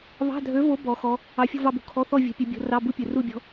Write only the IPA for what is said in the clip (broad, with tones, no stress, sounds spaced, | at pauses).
β ɑ̤˧˥˧ dʱ ø˧˥ v o˧˥ b ɔ˧˥ x ɔ˧˥ | ɑ˧˥ fʲ ṳ˥˧ v ɑ˥˧ b ṳ˧˥˧ kʰ ɔ˧˥˧ θ ɔ˥˧ vʲ ṳ˧˥ pʲ ø˧˥ bʲ o̤˧˥ r ɑ˧˥˧ b u˥˧ pʲ ø˨˩ r u˥˧ bʲ ɔ̤˧˥